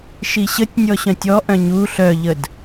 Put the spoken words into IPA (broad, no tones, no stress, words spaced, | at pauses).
ʃiɕətʲnʲɔ ɕœ̃tʲɔʔœ̃ ɲu ɬœʎəd